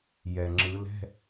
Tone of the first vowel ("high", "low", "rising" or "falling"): low